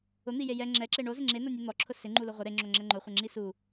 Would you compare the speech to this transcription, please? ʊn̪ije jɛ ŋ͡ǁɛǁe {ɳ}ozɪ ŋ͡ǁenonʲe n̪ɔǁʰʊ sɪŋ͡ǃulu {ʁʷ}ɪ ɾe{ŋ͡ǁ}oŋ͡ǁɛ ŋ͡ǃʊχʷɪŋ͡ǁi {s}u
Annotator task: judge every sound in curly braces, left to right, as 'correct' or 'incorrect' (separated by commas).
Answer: correct, correct, correct, correct